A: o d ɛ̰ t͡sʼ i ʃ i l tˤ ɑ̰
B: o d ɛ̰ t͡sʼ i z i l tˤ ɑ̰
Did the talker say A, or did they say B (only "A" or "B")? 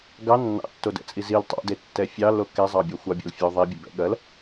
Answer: B